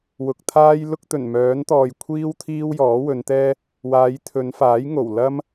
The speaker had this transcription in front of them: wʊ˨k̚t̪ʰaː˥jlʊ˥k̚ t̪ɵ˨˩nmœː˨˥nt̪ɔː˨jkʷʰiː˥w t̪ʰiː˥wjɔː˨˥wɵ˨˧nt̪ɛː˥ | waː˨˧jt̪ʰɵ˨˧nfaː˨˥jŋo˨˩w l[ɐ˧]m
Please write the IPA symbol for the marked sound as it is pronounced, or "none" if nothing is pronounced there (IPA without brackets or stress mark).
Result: ɐ˥